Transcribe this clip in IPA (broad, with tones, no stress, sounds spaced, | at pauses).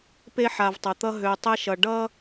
p e˦ ħ a˨ v tˤ ʌ˨ t̪ ʌ˦ ɦ ø˨ tˤ e˦ ʃ ʌ˨ ɖ ʌ˦